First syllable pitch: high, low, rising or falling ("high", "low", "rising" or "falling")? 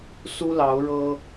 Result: high